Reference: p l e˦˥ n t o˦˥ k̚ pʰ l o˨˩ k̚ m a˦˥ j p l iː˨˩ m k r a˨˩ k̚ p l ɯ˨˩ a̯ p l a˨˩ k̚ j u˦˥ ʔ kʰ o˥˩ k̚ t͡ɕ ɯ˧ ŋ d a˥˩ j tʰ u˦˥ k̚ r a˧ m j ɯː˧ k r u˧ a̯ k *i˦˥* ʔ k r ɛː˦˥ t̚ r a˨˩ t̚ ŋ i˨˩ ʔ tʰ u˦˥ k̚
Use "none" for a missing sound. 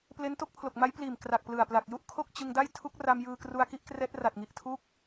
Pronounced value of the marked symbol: i˦˥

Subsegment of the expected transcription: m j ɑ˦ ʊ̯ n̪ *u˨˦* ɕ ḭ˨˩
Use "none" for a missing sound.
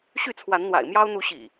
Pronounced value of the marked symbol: u˨˦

